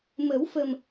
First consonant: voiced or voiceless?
voiced